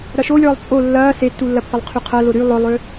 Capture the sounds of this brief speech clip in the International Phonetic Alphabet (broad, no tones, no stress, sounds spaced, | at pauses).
ɾ ɐ ʃ o lʲ ɔː lˠ t͡sʼ o lː ɐː s e tː u lː ɐ pː ɐ lˠ qʰ y qʰ ɐ l ʊ ɾ y lˠ ʊ lˠ ø